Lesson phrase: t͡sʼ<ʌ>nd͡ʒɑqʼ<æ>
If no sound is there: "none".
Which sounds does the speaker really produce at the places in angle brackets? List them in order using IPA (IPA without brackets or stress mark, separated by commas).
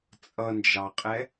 ʌ, ɛ